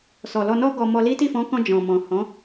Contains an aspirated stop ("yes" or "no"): no